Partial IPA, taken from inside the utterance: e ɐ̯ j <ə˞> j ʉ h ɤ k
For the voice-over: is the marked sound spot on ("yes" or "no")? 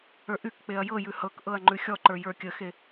no